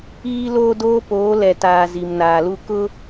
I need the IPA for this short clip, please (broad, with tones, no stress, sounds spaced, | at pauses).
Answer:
iː˦ l oː˦ d oː˦ p oː˨˦ l ɛ˨ t aː˨ z i˨ m n aː˨ l u˦ k ʊ˦